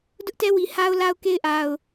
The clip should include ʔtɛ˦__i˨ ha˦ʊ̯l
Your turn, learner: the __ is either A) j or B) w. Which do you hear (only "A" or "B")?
B